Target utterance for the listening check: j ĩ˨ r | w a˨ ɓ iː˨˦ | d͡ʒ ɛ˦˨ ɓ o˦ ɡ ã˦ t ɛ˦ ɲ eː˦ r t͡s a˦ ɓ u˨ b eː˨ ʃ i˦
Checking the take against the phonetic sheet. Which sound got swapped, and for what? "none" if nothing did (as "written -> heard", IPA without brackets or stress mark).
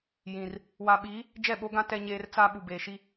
none